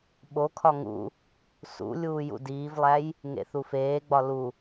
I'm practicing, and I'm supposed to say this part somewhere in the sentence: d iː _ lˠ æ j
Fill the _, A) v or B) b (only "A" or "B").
A